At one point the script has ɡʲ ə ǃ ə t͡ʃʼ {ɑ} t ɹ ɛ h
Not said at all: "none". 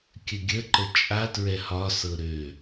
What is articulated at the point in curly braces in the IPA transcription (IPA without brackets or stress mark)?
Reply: a